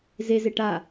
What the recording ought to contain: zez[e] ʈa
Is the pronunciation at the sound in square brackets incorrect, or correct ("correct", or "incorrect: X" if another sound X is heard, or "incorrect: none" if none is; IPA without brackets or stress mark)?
correct